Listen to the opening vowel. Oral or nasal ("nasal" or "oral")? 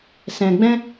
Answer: nasal